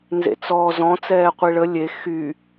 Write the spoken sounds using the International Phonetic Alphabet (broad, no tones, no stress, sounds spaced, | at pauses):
n z ḛ t͡s ɔː z ɔ̃ t͡s ɛː qʷ i ɭ ə lʲ e x y